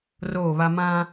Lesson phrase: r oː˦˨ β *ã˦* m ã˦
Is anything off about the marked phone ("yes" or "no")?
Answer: yes